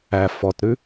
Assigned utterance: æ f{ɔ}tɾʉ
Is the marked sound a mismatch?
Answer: no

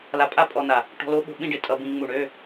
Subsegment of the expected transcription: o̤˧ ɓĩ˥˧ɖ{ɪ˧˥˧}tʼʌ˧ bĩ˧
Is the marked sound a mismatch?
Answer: yes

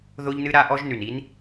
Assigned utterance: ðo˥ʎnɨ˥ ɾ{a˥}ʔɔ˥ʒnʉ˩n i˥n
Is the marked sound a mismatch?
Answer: no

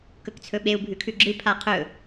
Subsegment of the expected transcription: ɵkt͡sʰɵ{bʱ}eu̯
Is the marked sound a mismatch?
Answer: yes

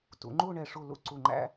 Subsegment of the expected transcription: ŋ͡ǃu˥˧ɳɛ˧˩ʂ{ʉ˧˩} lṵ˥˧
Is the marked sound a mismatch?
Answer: yes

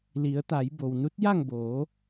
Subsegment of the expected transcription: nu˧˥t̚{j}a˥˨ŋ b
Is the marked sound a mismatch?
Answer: no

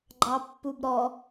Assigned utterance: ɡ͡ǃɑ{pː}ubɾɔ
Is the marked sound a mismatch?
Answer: no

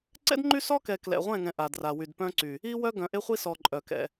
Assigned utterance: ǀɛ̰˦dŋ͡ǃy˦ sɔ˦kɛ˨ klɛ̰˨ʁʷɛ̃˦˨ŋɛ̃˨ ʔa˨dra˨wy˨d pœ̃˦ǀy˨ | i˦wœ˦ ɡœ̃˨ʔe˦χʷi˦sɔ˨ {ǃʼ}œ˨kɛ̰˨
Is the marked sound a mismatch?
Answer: no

